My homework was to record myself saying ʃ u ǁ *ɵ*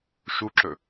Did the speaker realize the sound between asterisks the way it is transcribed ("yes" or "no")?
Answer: yes